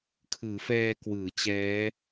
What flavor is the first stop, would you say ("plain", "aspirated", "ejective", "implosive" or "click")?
aspirated